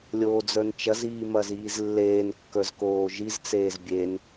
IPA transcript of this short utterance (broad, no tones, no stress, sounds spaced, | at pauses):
lʲ oː d͡z ə˞ n t͡ʃ ɐ z iː m ɐ z iː z lː eː n kː ə˞ z k oː ʒ i z t͡s eː z bʲ e n